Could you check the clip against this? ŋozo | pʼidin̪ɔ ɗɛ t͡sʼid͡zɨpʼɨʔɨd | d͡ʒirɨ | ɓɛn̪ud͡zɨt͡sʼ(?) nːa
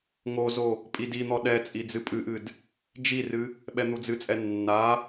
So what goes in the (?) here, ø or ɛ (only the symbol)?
ɛ